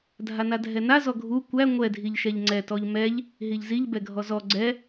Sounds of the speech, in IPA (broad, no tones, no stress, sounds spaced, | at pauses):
dʱ a n a dʱ ɛ n a z ɔ ɡʱ u kʷ æ ŋʷ ɛ dʱ i ʎ ʃ ɛ ʎ ŋ͡ǀ ɛ t ɔ ʎ m ɛ ʎ | ɦ i ʎ z i ʎ b ɛ ɡʱ ɔ z ɔ ɡ͡ǀ ɛ